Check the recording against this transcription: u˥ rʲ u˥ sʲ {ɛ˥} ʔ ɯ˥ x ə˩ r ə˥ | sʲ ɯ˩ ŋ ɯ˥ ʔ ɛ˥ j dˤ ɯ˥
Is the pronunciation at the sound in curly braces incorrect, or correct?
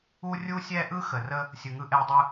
correct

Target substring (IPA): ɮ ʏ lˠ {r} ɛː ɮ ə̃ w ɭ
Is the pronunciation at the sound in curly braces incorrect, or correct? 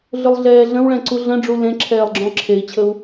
incorrect: ɮ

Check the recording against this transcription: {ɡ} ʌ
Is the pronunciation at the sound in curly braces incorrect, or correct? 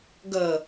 correct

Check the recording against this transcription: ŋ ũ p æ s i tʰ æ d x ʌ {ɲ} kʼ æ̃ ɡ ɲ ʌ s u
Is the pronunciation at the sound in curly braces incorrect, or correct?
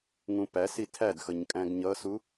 correct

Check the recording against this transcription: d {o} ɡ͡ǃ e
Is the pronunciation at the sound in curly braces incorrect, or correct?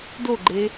correct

